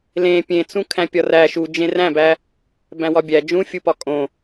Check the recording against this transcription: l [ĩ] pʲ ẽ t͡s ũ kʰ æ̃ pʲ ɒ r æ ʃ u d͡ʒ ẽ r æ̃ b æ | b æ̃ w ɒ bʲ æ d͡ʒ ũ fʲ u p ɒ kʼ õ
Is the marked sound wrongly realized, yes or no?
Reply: yes